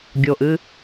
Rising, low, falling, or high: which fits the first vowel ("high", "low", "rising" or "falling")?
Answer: low